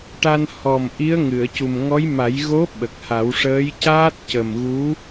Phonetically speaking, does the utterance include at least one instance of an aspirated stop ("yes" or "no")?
no